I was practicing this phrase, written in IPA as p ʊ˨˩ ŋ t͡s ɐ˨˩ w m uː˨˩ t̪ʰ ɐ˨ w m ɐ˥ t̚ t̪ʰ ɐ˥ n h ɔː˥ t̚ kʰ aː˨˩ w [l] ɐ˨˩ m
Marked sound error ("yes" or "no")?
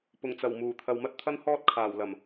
no